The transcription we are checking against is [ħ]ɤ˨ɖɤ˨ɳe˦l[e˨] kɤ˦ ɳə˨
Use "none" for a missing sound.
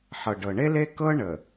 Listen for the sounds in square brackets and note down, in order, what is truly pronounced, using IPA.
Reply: ħ, e˦

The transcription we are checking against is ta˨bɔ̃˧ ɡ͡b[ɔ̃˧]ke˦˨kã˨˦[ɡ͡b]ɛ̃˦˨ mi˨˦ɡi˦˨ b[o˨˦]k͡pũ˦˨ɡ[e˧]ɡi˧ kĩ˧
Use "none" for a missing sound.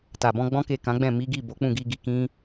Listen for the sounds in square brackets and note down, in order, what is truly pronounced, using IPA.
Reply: ɔ̃˦, ɡ͡b, o˨˦, i˧

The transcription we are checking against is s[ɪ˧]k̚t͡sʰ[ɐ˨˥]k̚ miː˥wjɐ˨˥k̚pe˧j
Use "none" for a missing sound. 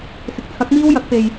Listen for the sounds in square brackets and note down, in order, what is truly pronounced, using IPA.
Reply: ɪ˨, ɐ˨˥

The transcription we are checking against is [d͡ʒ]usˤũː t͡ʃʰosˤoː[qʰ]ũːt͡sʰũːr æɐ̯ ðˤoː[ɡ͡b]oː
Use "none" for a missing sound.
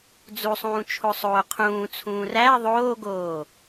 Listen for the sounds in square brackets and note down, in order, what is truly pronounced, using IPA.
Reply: d͡z, qʰ, ɡ

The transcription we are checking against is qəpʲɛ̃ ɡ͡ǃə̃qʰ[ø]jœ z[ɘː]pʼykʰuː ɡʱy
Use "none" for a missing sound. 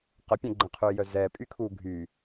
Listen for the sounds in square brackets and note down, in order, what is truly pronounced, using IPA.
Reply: ø, ɛː

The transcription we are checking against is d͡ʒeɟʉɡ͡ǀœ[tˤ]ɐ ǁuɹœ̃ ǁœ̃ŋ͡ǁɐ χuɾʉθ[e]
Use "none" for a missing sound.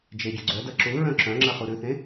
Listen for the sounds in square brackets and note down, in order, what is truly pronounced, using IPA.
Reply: d, ẽ

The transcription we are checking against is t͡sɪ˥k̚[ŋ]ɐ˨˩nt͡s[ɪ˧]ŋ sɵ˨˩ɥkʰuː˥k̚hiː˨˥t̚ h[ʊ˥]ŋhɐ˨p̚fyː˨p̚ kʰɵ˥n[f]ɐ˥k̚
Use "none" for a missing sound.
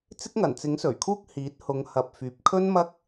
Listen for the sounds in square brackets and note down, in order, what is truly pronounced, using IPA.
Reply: ŋ, ɪ˨˥, ʊ˨˧, m

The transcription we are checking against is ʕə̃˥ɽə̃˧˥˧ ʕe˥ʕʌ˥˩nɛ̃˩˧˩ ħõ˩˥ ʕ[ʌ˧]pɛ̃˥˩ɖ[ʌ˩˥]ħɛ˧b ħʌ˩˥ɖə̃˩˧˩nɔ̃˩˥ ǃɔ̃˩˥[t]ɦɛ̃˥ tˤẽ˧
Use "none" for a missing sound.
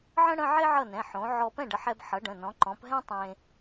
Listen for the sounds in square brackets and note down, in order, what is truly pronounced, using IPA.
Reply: ɔ˧, ə˩˥, p

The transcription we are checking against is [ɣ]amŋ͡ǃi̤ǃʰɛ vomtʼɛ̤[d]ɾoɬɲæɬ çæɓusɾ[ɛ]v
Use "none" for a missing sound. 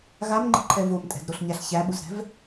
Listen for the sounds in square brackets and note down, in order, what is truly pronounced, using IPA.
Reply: ɣ, d, ɛ̤

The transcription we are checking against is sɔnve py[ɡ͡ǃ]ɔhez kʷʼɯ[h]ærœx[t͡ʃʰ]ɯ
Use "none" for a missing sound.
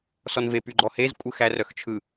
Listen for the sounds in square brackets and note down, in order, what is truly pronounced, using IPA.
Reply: ɡ͡ǃ, x, t͡ʃʰ

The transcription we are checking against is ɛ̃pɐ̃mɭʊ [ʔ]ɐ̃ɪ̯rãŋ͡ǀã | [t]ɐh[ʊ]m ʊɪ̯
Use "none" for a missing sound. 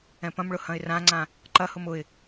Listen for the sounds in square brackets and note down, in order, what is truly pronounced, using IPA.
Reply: h, ǃ, ʊ

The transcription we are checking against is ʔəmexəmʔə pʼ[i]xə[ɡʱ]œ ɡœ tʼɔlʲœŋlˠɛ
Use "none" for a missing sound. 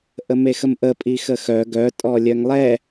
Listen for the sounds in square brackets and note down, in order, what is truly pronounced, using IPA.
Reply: i, x

